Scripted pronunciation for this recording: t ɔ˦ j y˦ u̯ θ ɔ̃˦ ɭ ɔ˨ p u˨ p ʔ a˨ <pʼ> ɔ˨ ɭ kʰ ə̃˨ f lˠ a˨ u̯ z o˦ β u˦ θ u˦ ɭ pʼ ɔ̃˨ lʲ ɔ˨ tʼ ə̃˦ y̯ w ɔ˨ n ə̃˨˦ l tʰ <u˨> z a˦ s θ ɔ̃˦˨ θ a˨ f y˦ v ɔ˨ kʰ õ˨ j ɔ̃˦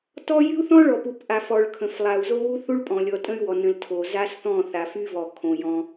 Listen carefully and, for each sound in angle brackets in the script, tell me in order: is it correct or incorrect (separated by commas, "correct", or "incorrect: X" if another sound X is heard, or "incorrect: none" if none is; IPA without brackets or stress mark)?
incorrect: f, incorrect: o˨